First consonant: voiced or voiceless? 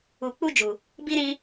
voiceless